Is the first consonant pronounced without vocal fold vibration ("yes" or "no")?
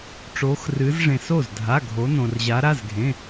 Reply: yes